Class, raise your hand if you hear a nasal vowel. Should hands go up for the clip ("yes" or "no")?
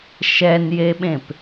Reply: yes